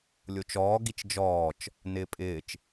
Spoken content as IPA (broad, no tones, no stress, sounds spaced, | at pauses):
lʲ o t͡ʃ ɔː ɡ i t͡ʃ d͡ʒ ɔː t͡ʃ | n ɪː pʼ ɪː t͡ʃ